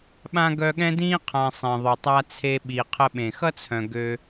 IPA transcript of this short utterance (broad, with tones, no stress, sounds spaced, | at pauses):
ɓ ã˥ ɡ œ˦ ɠ ɛ̃˥ d ĩ˦ qʰ ã˨ sˤ ẽ˩ ðˤ ʊ˩ tˤ a˨ t͡sʰ e˨ ɓ i˩ qʰ ə˨ ɓ ẽ˩ x ʌ˦ t͡sʰ œ̃˩ ɡ ø˨